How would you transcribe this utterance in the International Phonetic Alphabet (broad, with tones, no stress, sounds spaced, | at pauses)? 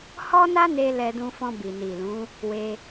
h ɔ˦ n a˦ n e˧ l ɛ˧ d ũ˧ f ɔ̃˧ b i˨ n i˨ l ũ˨˦ | w e˧